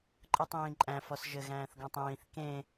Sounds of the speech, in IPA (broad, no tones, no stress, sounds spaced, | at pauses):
ǃʼ ɯ tˤ ĩː ǃʼ æ̃ f ɔ s ʒ ɘ ɣ æ̃ː θ ɡ ɔ̃ tˤ ĩː θ k ẽ